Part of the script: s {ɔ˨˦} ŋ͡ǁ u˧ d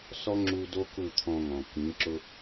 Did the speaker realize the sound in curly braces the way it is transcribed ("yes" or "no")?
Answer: no